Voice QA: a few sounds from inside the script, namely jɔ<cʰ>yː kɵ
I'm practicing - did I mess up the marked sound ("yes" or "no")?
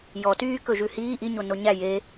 yes